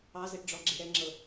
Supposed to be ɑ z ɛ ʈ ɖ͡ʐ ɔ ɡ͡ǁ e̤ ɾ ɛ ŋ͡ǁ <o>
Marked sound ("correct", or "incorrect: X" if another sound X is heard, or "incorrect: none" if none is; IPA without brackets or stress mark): incorrect: ɤ